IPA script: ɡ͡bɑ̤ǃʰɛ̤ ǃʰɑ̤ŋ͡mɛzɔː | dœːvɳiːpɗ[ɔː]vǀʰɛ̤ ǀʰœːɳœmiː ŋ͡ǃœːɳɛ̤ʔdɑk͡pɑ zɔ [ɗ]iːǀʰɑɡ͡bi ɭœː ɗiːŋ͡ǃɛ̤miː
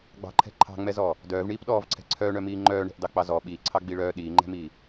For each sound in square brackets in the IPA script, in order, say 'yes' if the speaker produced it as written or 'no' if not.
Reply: yes, no

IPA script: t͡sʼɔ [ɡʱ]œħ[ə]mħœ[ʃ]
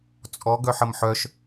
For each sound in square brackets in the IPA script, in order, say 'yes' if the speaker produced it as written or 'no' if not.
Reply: no, yes, yes

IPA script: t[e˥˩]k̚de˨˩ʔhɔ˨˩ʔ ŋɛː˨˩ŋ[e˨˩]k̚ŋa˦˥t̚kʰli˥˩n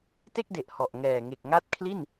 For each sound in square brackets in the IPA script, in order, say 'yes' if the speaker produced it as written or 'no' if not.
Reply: yes, yes

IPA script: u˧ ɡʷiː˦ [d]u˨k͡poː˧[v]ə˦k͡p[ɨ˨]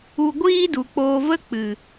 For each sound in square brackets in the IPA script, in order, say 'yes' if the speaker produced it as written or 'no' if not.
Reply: yes, yes, yes

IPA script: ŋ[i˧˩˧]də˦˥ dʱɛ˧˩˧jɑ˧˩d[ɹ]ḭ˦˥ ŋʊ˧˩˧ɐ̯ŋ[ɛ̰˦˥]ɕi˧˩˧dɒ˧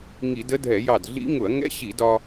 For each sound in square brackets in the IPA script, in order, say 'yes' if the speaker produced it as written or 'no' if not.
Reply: yes, no, yes

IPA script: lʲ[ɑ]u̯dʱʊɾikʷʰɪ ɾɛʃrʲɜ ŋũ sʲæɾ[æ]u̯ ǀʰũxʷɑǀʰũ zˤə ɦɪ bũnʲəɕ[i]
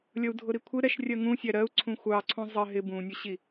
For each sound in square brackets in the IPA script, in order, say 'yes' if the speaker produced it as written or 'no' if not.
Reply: no, no, yes

